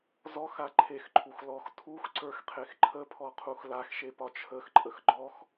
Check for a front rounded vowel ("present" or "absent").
absent